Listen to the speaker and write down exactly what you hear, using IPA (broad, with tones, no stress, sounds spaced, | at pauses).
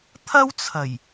t̪ʰ ɐ˥ w t͡sʰ ɐ˨˩ j